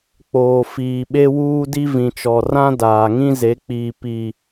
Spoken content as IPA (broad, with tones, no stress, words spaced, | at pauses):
k͡poː˨fiː˨ ɓe˦wuː˦di˦ vĩ˨t͡ʃɔ˨ rã˦ daː˨ŋĩ˦ze˨˦k͡piː˨ pi˨